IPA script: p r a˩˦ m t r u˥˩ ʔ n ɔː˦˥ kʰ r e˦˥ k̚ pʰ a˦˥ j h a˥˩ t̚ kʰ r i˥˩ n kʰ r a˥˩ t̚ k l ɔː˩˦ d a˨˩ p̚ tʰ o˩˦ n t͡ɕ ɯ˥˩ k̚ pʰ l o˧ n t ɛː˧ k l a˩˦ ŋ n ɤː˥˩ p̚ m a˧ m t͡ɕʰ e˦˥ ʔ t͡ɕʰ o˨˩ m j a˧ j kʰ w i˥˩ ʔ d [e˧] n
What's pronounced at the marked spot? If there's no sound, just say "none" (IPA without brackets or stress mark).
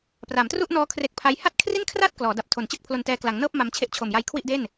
e˥˩